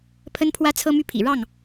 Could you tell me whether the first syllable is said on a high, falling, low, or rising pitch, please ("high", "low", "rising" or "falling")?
high